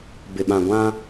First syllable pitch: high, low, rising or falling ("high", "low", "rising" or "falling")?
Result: low